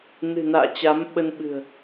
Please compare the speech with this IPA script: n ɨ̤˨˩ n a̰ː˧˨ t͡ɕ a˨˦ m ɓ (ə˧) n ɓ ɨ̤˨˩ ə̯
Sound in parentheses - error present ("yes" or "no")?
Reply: no